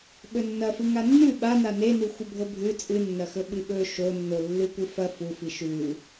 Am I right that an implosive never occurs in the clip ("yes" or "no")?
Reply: no